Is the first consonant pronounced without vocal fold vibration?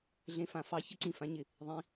no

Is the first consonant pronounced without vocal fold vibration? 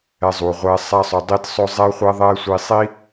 no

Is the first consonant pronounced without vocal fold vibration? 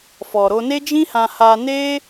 yes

